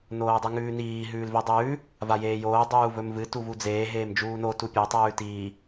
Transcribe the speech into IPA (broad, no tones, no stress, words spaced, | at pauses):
noːdˤiŋʉːniː ɦʉːlvidˤʉː | vajeːjoː dˤuːvɵmvɨ tuvud͡zeː ɦeːmd͡ʒuːno tupʲo tˤʉːtiː